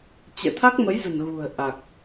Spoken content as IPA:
t͡ɕ ɛ̰˧˨ t̪ʰ a˦˥ k̚ m ə˨˦ j z ə̤˨˩ n ɣ ṳ˨˩ ə̯ ʔ a˨˩ k̚

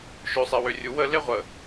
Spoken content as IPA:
ʃ ø sˤ e w ø rʲ u w ə l e ʁʷ ə

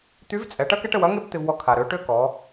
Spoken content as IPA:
t̪ y˧˥ v t͡sʼ ɛ˩˧ ʈ ɐ˥ k ɛ˥ ʈ ə˧ w ɐ˧˥ ŋ e˥ b t̪ ɪ˧ v w ɔ˧ kʰ a˩ ɾ ø˩˧ ʈ ø˥ k ɔ˩˧

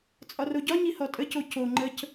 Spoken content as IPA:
t͡sʼ ɒ r o ɟ ɒ ɲ i h ɔ tʼ ə c o c o ŋ͡ǃ ə c

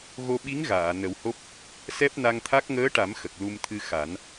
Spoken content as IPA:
ɣ o˧ ɓ i˧˥ ŋ ɣ aː˨˩˨ n ə˨˩˦ w h o˦˥ p̚ | s ɛ˦˥ p̚ n a˧ ŋ t̪ʰ a˦˥ k̚ ŋ əː˧˥ ʈ a˨˩˦ m x ə˨˩ k̚ l u˧ m t̪ʰ ɨ˧ x a˨˩˦ n

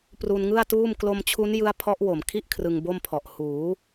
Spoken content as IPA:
p r u˧ n ŋ ɯ˥˩ a̯ t uː˥˩ m k l o˧ m t͡ɕʰ u˦˥ n j ɯ˦˥ a̯ pʰ ɔ˦˥ ʔ w o˨˩ m kʰ i˥˩ ʔ kʰ r ɯ˧ ŋ b o˥˩ m pʰ ɔ˨˩ ʔ h uː˩˦

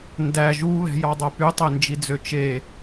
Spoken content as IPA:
n d æ ʒ u β ɛ̤ j ɑ dˤ œ p y tˤ e n d͡ʒ i d͡z ø t͡ʃ e

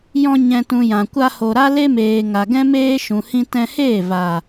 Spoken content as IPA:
j ɔ̃˧ ɲ ɛ̃˧ t ũ˧ j ã˨ kʷ a˧ h o˨ ɾ a˦ l e˦ m eː˨ ŋ a˨ ɡ ɛ̃˦ m eː˦ ʃ ũ˨ h ĩ˧ t ɛ̃˧ h eː˦˨ v a˨

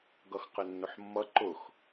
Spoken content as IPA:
ɡ ʌ x q ɪ nː ʊ ħ mː ʌ ǃ ʊ x

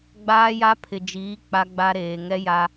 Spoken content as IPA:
ɡ͡b aː˦ j a˦ pʰ ɪ˨ d͡ʒ iː˨˦ k͡p a˦ ɡ͡b a˦ ɾ eː˨ ŋ ɛ˦ j a˦

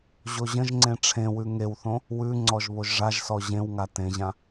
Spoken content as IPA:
ʑ o ʑ ə̃ ʒ ŋ͡ǀ ẽ ʈ͡ʂʰ ẽ w ʉ ŋ e w θ õ | w ʉ ŋ͡ǀ ɔ ʒ β o ʒ ʐ a ʒ s ɔ ʑ ẽ w ŋ a t ẽ ʑ ã

